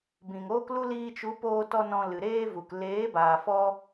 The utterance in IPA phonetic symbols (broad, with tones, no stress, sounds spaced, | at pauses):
b ĩ˨ ŋ oː˦ k l u˦ l iː˧ t͡ʃ u˨˦ p oː˧ t ɔ˧ n ɔ̃˧ l ɨ˨ ɾ eː˦ v u˨ k l eː˨˦ b aː˨ f ɔ˦